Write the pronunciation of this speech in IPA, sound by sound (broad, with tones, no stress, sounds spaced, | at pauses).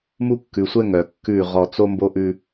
m u˦ kː ʉ˨ sʷ ɛ˦ ŋ œ˨ kː ʉ˦˨ ʁ ɔ˨ t͡s o˦ m b o˦ ʔ ʉ˦